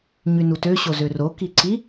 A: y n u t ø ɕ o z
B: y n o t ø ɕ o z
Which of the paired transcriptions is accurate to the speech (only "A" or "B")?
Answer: A